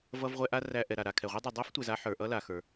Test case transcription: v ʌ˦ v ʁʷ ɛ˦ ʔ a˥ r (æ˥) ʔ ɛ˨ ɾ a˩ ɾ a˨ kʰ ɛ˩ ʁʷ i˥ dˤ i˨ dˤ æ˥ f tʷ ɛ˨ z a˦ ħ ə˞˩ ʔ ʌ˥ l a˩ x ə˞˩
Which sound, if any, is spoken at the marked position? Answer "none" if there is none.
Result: æ˦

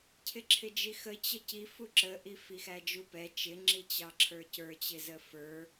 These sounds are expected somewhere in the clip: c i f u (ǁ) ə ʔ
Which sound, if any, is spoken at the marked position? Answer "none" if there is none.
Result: ǁ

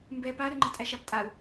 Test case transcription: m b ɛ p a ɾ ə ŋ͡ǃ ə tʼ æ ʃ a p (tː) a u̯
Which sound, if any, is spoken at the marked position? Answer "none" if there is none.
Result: tʼ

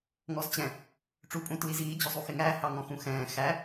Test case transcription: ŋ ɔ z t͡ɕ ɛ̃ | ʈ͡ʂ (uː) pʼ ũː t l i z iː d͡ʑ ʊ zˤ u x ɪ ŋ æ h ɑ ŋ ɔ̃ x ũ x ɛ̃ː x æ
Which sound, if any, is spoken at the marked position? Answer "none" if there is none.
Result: uː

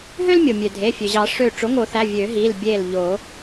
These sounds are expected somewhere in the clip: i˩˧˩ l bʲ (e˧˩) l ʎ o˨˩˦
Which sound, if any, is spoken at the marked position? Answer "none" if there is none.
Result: e˧˩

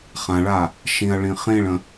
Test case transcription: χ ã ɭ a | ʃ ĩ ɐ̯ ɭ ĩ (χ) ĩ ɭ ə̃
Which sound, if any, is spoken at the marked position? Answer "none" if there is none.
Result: χ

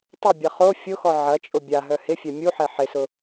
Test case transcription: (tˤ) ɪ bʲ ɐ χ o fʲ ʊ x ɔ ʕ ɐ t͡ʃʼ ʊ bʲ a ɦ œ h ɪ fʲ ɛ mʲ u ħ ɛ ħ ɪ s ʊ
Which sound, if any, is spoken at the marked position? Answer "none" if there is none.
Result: tˤ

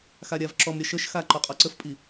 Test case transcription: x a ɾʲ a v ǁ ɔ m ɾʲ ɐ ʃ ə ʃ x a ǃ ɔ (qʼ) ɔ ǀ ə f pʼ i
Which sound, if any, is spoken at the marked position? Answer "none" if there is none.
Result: qʼ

